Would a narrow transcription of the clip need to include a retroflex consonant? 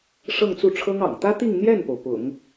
yes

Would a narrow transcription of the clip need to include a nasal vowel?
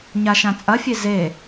yes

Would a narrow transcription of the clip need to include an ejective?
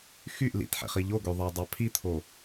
no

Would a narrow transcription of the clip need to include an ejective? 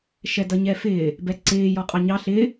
yes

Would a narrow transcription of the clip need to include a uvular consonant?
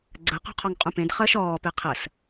yes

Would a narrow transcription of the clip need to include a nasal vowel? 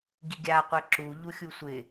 no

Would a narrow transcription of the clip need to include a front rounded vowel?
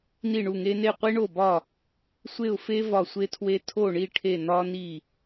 no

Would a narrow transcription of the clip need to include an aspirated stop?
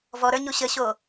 no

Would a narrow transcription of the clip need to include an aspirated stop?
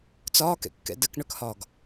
no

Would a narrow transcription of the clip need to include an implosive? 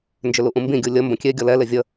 no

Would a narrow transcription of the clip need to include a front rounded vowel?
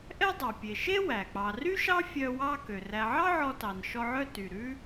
yes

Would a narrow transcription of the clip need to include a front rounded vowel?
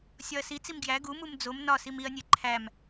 no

